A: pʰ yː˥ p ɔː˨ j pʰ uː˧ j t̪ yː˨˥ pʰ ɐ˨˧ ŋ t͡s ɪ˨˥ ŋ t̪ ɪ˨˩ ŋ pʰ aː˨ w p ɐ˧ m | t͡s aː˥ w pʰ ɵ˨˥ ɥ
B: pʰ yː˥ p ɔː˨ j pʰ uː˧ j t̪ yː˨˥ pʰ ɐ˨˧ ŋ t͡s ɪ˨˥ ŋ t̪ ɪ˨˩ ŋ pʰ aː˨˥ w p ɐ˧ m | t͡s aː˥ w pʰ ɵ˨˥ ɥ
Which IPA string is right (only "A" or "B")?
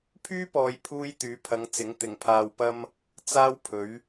A